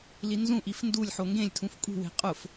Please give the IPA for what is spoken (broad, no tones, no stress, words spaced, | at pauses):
linzũʔif ndulʲħo ŋɡẽlʲtʰũf kʼṳwe̤ qʼʊf